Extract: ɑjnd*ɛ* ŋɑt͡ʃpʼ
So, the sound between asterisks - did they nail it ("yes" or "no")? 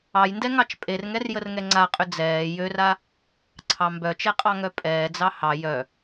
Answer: yes